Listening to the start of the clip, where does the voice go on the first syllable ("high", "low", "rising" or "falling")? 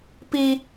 high